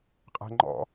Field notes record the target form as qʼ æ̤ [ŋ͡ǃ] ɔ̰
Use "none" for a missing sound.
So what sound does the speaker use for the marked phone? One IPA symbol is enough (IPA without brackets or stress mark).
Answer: ŋ͡ǃ